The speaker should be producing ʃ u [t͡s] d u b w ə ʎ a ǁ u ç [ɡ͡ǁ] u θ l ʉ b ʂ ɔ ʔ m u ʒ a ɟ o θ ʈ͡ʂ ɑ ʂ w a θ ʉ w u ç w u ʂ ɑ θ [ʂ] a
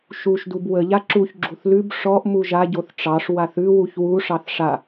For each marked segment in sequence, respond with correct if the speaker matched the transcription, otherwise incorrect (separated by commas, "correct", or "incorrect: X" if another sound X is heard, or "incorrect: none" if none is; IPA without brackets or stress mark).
incorrect: ʃ, correct, correct